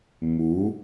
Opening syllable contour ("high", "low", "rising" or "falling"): rising